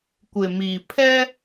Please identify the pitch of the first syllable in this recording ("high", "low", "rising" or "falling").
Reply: low